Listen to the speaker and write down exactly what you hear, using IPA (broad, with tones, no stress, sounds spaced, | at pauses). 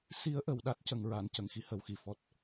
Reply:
s i˧˥ ə̯ ʔ ə˨˩ w ɗ a˦˥ t̚ c ə˨˩ ŋ ɹ a˨˩˨ n c ə˨˩ ŋ x i˧ h ə˨˩ w x i˨˩˨ f ɔ˨˩ t̚